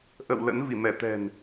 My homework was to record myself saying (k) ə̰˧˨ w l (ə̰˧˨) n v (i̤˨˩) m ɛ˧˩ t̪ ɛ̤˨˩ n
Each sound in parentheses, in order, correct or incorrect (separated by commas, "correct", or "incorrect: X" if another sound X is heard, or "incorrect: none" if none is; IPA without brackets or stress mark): incorrect: ʔ, incorrect: ə̰˧˥, incorrect: i˧˩